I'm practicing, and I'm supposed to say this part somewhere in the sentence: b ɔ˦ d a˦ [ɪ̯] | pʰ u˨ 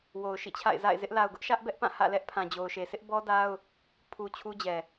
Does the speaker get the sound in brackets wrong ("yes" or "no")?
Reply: yes